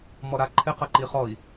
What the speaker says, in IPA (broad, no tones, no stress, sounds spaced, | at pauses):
m ɔ ɾ a ǃʰ ɪ q ɐ ǃ i χ ɔ i̯